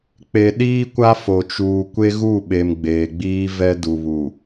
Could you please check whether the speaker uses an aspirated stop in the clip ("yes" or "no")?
no